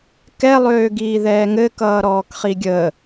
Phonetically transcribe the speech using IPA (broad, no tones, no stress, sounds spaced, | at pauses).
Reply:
k ɛ lˠ øː ɡ iː ð ɛː ŋ ɘ k ʌː ɾ ɔː k χ i ɡʲ ə